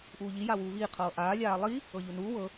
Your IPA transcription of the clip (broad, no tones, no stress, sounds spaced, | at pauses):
ʔ uː ʎ i j a w uː β iː qʰ ɤː ʔ aː lʲ aː lˠ i | ɤ ʎ u n uː w ɤ